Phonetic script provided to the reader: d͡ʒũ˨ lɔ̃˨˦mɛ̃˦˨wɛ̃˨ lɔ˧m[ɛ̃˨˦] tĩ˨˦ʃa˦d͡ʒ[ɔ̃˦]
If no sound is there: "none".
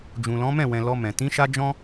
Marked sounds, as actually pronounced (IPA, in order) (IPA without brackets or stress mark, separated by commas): ɛ̃˨, ɔ̃˦